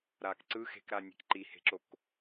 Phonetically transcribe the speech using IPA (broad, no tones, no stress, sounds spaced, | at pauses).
ɾ aː k ǀ ɯ x e̤ k ɾ a nʲ e̤ k ǃ i h e̤ ǁ o k